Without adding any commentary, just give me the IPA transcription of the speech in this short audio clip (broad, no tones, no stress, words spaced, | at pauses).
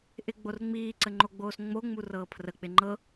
ʔɪɡ͡borŋ͡miːǀə ŋ͡ǃoɡ͡boːsŋ͡moŋ͡mu rɤːpʰrək͡pɪ ŋ͡ǃɤ